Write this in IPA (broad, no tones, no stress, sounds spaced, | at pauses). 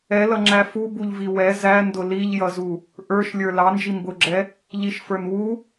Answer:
ɛ l ʌ ŋ͡ǁ æ f u b u ʎ v i w ɛ z æ n d ʊ l i ʎ j ʌ z u | ʔ ə˞ ʃ lʲ ə˞ l ɑ n d͡ʒ i m b ʊ ɡ͡ǁ ɛ | ʎ i ʃ f ə˞ n w u